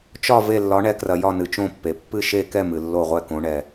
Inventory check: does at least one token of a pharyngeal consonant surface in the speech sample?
no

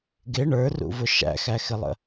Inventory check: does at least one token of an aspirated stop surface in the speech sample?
no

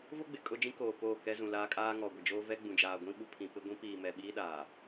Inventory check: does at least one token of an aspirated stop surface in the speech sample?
yes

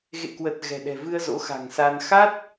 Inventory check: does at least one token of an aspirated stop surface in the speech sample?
no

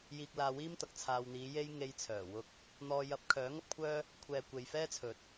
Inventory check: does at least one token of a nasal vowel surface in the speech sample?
no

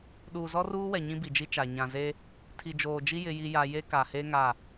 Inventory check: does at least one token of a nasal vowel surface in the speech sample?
yes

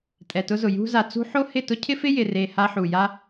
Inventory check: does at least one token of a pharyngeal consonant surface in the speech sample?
yes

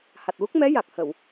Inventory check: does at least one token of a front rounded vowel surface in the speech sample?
no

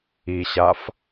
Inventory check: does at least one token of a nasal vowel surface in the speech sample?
no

